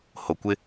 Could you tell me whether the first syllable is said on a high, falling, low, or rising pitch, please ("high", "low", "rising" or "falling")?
low